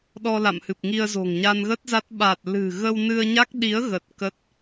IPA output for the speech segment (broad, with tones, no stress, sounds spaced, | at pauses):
ɗ ɔ˧ l a̰˧˨ m h ɨ˨˩ p̚ ŋ i˧ ə̯ z o̤˨˩ ŋ ɲ a˧ n ɣ ə˦˥ t̚ z a˦˥ t̚ ɓ a˨˩ t̚ l ɨ̤˨˩ ɣ ə˧ w n ɨ˧ ə̯ ɲ a˦˥ k̚ ɗ i˨˦ ə̯ ɣ ə˨˩ t̚ k ə˦˥ t̚